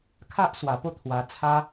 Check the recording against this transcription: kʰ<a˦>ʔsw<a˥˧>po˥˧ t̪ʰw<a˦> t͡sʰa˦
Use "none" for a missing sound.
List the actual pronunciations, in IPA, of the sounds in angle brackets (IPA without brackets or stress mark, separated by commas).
a˦, a˨˩, a˧